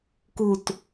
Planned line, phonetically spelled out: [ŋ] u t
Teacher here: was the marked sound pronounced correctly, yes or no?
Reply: no